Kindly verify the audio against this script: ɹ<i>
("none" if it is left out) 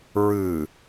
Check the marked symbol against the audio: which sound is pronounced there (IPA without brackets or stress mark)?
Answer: ɨ